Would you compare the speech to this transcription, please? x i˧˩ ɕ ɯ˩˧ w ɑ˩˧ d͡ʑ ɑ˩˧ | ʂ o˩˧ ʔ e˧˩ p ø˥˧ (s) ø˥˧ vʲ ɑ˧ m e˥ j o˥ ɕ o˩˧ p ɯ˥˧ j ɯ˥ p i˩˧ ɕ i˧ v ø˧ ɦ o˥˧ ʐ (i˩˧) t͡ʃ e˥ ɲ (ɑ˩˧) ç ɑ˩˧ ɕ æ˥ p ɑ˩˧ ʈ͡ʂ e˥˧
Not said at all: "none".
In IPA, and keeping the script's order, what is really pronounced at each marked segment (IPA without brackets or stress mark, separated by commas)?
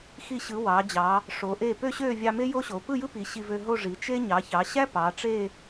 ɕ, i˩˧, ɑ˩˧